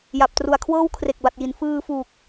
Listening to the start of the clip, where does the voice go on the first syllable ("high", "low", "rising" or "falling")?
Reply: low